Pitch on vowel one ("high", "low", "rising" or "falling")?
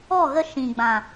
falling